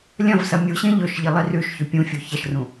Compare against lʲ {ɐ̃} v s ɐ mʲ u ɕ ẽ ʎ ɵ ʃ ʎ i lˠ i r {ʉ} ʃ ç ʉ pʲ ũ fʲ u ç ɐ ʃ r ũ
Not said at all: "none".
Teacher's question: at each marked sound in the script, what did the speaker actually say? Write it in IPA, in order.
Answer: ɐ̃, ʉ

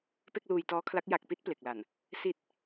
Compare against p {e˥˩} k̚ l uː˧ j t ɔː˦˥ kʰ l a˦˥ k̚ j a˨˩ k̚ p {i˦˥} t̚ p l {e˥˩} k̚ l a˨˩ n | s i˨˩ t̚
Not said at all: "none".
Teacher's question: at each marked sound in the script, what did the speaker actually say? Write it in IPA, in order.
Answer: e˥˩, i˦˥, e˨˩

